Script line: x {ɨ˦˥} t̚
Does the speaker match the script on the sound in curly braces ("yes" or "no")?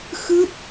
yes